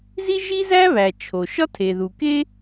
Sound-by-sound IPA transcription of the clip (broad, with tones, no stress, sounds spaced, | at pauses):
z i˥ ʒ i˥ z æ˥ β æ˩ t͡ʃʰ o˩ ʃ ɒ˥ tʰ e˩ ð u˩ k e˥